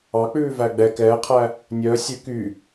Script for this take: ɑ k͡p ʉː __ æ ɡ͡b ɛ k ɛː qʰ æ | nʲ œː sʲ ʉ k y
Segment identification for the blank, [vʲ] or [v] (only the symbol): v